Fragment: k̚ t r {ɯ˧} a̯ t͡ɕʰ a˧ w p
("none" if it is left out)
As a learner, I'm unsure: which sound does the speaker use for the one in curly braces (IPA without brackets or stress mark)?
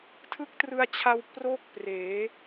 ɯ˧